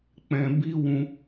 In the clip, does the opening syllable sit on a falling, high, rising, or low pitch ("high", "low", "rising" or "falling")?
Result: low